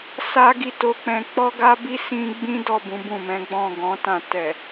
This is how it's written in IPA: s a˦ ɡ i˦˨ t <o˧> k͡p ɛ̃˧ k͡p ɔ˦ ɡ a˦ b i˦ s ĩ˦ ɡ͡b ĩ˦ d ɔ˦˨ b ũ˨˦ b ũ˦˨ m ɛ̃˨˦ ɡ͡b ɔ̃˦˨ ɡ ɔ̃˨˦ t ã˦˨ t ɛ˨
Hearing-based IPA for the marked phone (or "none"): o˧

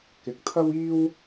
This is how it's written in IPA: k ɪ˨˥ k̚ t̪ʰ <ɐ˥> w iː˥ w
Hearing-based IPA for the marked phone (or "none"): ɐ˥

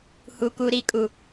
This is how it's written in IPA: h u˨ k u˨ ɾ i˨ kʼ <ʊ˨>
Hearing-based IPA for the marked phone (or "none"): u˨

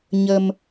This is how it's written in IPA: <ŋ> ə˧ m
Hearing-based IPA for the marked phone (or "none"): ɲ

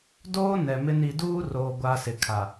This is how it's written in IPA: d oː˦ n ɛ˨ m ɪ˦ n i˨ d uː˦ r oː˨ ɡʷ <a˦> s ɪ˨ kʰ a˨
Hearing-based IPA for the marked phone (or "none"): a˦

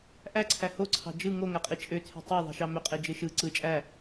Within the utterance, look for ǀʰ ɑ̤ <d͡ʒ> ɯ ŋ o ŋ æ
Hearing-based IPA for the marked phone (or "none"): d͡ʒ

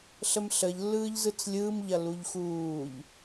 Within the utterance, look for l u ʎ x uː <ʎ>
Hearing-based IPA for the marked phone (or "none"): ʎ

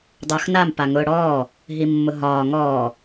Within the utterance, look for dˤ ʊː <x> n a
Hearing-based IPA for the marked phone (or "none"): x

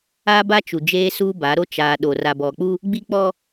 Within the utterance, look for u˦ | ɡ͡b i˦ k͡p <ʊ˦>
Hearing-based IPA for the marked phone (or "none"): ɔ˦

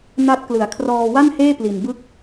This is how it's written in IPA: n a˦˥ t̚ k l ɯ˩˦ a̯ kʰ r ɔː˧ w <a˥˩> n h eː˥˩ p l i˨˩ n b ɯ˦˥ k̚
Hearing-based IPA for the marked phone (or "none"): a˥˩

